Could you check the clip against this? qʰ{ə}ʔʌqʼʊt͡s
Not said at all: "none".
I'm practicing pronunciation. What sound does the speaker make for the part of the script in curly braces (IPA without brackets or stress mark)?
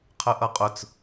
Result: ə